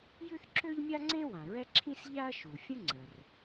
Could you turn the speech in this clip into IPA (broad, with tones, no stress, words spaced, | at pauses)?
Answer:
jʉ˥θǁø˥ʎmʲa˥ŋ͡ǀẽ˥ wã˩ɹɛ˥ǁʰĩ˥s ʎa˥ɐ̯ʃu˩ fʲə̃˥ŋ͡ǀə˩r